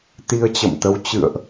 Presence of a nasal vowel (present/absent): absent